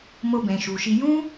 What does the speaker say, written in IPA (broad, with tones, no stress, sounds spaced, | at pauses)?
m o˧ b ɛ̃˨ ʃ u˨ ʃ i˧ j ũ˦